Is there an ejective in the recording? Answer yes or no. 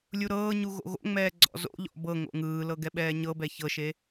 no